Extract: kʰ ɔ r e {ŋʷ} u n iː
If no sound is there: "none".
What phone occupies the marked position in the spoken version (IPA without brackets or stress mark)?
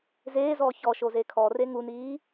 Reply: ŋ